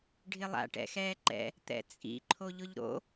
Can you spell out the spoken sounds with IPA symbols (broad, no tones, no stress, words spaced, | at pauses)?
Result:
ɖʱɪlˠa̰ ʈɛ̰xɛːǃɛ̰ | t̪ɛ̰t͡sʼḭ ǃʰoʎʊʎɾo̰